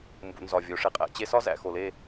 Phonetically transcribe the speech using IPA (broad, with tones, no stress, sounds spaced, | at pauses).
m b ṵ˨ n z ɒ˨ vʲ o˨ ʂ e˧ qʼ æ̰˧ t͡ɕ e˦ s ɒ˦ z æ̰˨ x o˨ l e˦˨